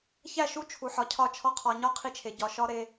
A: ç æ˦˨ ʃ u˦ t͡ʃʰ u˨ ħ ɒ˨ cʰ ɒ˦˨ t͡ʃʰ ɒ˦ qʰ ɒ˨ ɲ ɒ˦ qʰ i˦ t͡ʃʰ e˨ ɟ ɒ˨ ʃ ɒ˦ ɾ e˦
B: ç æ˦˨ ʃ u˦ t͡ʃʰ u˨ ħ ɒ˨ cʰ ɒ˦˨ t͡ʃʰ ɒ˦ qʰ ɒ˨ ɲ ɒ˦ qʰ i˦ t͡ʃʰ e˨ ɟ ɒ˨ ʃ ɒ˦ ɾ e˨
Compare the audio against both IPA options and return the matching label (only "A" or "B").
A